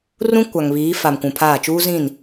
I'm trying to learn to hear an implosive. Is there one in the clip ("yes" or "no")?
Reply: no